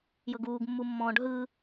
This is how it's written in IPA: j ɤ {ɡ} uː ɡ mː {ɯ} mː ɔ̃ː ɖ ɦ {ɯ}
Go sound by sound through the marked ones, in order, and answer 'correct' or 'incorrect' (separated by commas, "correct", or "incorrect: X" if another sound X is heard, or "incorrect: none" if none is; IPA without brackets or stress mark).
correct, incorrect: u, correct